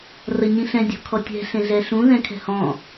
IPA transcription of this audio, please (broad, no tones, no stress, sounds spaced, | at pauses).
r ɐ ɲ ĩ ɬ ɛ̃ dʲ ɔ̤ kʰ ɔ tʲ ɛ̤ ɬ ẽ ɮ ɛ ɬ ũ ð ɛ̃ kʰ ɛ̤ h ɔ̃